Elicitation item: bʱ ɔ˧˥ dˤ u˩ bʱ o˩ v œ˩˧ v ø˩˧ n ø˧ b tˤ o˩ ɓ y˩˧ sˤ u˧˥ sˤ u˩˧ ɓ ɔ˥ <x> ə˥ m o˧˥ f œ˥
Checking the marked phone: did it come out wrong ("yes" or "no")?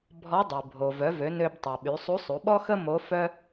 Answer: no